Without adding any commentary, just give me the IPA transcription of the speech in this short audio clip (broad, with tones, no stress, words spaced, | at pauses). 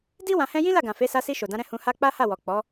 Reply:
di˦ wã˧hɛ̃˦ jĩ˦la˦˨ɡã˨ fe˨˦ sa˧si˧ ʃo˨dã˨˦ɾɛ̃˦˨ hũ˧ha˦ k͡pa˦ha˦˨wɔ˨ k͡pɔ˨˦